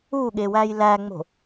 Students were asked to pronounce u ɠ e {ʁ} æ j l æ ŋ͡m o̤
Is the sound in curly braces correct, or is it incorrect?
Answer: incorrect: w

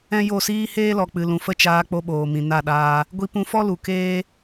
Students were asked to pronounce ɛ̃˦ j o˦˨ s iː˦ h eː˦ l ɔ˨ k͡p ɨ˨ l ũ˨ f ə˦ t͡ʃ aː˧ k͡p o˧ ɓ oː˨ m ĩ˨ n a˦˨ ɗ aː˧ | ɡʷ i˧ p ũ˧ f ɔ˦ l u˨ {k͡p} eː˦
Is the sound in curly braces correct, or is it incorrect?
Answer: incorrect: k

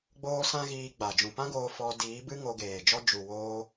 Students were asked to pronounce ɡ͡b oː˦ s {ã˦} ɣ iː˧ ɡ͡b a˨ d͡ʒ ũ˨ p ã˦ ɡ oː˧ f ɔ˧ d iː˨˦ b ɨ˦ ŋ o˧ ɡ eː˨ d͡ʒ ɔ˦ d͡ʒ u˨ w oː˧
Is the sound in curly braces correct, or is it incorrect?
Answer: correct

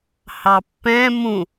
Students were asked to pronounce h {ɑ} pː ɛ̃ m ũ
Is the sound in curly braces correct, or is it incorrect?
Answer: correct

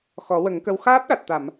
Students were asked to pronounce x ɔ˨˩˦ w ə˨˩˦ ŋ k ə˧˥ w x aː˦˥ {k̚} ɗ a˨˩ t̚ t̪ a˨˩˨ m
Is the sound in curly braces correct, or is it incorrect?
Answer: incorrect: p̚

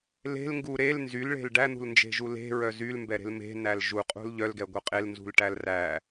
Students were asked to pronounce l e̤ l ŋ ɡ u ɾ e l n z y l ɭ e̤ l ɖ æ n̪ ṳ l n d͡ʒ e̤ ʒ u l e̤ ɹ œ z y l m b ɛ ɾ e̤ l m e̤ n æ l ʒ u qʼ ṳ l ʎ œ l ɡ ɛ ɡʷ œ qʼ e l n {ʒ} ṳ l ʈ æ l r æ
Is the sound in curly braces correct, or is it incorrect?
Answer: incorrect: z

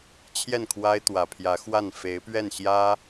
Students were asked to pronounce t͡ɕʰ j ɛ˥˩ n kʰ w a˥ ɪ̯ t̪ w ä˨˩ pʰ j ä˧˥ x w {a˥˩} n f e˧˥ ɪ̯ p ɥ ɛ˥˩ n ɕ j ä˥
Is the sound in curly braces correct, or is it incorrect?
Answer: correct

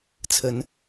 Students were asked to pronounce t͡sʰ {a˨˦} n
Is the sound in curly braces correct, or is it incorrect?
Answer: incorrect: ə˨˦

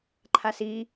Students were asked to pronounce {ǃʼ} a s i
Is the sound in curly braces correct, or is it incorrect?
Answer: incorrect: ǃʰ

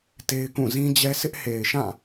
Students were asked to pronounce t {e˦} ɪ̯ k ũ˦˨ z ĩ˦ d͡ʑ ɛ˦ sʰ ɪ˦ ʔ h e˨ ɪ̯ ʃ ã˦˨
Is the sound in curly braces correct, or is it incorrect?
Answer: correct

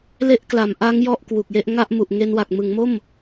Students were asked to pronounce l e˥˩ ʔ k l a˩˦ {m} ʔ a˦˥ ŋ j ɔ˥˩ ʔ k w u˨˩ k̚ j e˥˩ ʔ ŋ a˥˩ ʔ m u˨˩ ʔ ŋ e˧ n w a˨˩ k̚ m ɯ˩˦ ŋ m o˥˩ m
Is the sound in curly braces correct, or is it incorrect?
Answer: correct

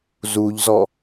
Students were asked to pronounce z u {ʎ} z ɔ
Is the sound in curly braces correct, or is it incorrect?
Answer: correct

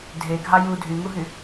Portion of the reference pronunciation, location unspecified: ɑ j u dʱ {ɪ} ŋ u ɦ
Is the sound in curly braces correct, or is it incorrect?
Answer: incorrect: y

